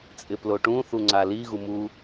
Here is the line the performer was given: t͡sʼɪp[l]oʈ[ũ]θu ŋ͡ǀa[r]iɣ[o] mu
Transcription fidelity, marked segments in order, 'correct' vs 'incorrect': correct, correct, incorrect: l, incorrect: u

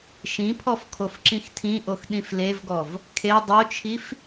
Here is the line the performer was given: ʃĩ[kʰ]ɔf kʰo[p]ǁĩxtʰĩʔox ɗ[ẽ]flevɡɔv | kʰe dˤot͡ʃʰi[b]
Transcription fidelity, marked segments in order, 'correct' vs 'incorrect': incorrect: pʰ, incorrect: f, incorrect: ĩ, incorrect: f

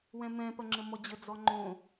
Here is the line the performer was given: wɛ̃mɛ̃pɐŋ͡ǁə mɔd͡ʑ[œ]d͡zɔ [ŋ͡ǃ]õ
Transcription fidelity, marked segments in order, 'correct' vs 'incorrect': incorrect: ə, correct

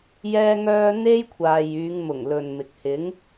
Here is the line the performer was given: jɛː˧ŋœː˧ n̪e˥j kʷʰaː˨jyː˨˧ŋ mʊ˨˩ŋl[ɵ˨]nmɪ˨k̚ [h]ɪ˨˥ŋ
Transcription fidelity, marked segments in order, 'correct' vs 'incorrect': correct, correct

